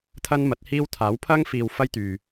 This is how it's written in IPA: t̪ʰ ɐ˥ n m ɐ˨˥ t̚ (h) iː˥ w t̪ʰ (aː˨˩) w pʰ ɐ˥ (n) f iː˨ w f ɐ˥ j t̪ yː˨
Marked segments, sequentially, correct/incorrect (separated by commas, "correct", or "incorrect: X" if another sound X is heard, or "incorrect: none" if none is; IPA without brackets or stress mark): correct, incorrect: aː˨˥, incorrect: ŋ